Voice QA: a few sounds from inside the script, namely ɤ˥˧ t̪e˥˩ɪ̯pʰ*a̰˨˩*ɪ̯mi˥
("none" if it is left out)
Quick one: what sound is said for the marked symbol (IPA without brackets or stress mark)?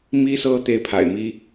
a̰˨˩